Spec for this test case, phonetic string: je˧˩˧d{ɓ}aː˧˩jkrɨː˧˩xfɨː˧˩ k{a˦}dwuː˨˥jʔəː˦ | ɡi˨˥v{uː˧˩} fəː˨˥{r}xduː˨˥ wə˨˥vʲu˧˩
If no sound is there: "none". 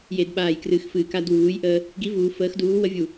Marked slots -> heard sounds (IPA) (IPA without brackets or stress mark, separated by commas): ɓ, a˦, uː˩˧, none